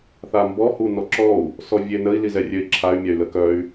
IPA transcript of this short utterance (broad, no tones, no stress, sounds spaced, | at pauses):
θ a m b ɔ h u n ɔ ǁ ɔ u̯ | s ɔ vʲ e n ə i̯ l i z ɛ rʲ ø i̯ ǁʰ a y̯ mʲ a y̯ l ə k œ y̯